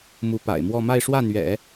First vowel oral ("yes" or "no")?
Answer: yes